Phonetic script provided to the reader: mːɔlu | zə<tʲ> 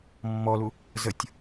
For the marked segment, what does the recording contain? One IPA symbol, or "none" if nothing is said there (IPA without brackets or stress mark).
tʲ